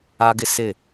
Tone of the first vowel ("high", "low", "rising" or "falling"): high